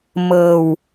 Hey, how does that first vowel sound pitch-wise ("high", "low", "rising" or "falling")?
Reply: low